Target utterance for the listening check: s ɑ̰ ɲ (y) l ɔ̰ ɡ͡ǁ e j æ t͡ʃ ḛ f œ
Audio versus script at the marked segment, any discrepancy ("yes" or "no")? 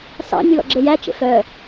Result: no